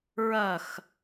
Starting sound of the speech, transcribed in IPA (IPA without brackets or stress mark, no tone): ɹ